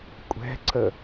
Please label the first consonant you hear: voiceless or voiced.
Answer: voiceless